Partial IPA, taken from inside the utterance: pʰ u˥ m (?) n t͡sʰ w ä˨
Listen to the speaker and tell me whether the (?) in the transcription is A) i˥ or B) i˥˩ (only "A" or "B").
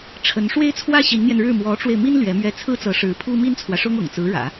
A